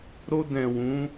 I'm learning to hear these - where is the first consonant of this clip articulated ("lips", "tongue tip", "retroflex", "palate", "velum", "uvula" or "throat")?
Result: tongue tip